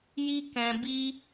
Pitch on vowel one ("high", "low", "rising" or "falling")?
high